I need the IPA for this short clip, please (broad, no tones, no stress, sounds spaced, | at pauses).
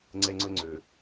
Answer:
ŋ͡ǀ ɛ ŋ͡ǀ ɵ ŋ͡ǀ ø